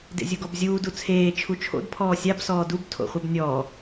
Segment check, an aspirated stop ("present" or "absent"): present